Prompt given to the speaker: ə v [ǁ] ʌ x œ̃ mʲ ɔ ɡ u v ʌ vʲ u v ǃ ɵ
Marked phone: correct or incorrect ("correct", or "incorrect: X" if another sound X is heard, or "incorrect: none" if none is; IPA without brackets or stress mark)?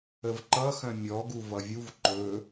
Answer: incorrect: ǃ